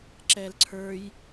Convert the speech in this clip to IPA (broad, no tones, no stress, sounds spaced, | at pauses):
ǁ ɛ l ǀʰ ə˞ j